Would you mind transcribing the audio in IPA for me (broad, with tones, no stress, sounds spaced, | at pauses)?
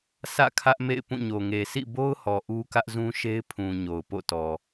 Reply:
sʰ ä̰˦˨ kʰ ä˦ ʔ m ḛ˦˨ ɪ̯ p ũ˦˨ ɲ o˨ ŋ e˨ s ḭ˦˨ b o˦ ʊ̯ h ɔ˨ ʔ u˦ k ä˦ ʔ z ũ˦ ʃ e˦ ɪ̯ pʰ ũ˨ ɲ o˨ ʊ̯ p o̰˦˨ t ɔ˨